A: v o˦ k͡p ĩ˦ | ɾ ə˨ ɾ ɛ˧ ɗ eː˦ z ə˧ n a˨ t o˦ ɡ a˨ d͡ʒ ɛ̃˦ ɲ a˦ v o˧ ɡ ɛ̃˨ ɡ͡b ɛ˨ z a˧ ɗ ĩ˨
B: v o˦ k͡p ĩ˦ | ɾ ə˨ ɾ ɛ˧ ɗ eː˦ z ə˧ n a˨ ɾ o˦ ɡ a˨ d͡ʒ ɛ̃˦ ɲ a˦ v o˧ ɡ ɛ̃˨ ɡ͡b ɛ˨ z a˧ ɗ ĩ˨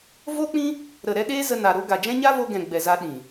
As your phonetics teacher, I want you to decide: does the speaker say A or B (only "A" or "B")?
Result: B